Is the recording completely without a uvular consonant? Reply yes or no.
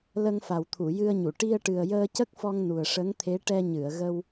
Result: yes